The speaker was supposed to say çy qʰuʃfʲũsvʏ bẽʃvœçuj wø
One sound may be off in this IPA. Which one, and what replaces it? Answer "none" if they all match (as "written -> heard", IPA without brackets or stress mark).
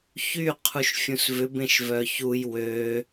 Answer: none